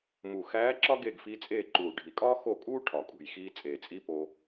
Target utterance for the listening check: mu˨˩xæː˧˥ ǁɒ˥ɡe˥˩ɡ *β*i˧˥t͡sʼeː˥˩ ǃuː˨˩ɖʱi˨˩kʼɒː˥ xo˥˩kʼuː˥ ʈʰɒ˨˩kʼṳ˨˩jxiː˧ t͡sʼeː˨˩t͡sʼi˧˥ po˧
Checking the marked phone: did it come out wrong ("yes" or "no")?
yes